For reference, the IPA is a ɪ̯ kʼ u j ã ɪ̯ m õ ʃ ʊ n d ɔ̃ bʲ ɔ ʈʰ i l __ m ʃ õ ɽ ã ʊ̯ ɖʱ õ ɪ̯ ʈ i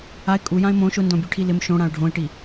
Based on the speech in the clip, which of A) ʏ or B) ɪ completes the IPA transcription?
B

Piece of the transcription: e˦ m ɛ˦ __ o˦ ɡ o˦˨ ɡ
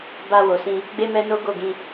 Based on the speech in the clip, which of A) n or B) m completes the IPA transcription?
A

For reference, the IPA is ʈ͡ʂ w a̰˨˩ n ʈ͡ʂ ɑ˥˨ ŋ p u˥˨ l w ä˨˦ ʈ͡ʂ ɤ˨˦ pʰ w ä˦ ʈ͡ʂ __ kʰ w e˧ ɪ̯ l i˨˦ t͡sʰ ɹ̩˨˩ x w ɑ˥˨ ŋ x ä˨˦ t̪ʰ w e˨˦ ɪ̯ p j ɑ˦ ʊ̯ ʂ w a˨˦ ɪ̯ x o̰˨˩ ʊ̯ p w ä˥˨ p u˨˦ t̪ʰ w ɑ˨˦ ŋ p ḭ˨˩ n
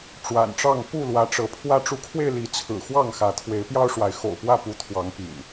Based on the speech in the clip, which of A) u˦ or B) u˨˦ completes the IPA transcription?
B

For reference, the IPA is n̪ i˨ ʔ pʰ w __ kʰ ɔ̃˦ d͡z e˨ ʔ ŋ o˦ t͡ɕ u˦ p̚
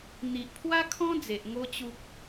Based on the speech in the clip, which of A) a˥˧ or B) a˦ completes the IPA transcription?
B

